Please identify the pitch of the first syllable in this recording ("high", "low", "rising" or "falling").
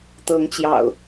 rising